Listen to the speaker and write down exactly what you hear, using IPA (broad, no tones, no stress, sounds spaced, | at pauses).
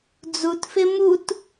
d͡z u t f ɪ m u t